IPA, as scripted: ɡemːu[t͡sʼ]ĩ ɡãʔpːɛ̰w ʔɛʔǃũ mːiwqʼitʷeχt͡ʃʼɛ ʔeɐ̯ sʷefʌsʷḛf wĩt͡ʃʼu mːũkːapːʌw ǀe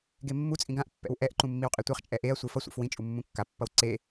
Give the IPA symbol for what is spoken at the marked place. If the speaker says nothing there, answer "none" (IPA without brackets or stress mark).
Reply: t͡sʼ